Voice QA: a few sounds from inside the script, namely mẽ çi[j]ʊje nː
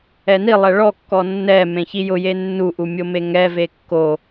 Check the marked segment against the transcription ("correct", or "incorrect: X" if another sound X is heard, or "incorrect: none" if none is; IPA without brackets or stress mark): correct